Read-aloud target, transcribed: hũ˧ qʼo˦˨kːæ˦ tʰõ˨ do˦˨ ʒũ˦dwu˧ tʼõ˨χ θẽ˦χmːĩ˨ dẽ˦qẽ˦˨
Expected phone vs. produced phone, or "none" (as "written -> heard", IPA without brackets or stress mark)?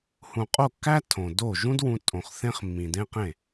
u˧ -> ũ˧